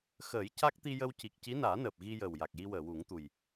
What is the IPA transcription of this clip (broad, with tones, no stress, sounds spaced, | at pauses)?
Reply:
x əː˨˩˦ j c a˦˥ k̚ t̪ i˧ j ə˧ w c i˨˩ k̚ c i˧˥ n aː˨˩˦ n əː˨˩ p̚ ɣ i˧ j əː˨˩ w j a˨˩ k̚ j i˧ w əː˨˩˨ w u˨˩˦ ŋ t̪ u˨˩ j